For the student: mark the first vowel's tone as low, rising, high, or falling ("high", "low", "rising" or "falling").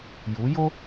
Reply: rising